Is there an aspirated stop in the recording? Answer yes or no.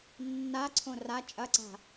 yes